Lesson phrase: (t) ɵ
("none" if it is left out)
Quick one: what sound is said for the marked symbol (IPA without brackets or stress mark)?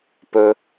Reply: p